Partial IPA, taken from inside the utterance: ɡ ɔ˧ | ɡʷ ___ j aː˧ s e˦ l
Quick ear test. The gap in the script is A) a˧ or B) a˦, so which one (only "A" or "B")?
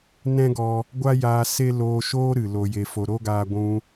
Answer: B